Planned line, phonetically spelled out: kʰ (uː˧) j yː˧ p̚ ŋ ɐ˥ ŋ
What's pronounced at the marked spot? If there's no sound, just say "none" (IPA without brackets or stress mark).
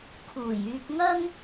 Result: uː˨˩